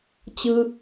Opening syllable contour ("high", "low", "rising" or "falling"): high